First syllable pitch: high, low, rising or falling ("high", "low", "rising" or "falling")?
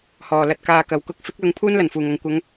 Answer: low